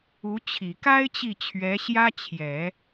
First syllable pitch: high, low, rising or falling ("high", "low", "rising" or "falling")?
rising